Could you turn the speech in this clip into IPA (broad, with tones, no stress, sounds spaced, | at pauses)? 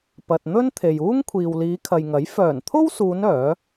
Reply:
p ɐ˨ t̚ n̪ ɵ˥ n t̪ʰ e˨ j uː˥ ŋ kʷʰ iː˨ w l iː˨˧ kʰ ɐ˨ j ŋ ɐ˨˥ j f œː˨˩ n t̪ʰ o˥ w s uː˨˧ n œː˨˥